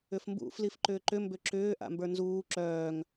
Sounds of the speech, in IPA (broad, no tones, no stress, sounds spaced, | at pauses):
ʏ f m b ṵ f l i f ǃ ʏː ǃ ʏ m b ʏ ǁ ʏː ʔ a̰ m b ə˞ n z uː ǁ œː ŋ